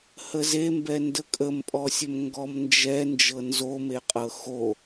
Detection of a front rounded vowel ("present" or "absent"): absent